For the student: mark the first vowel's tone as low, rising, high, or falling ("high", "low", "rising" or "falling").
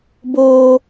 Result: high